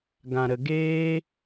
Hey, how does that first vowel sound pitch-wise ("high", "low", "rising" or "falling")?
low